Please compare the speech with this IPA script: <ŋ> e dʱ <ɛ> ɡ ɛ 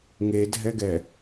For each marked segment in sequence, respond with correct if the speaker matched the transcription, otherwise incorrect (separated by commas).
correct, correct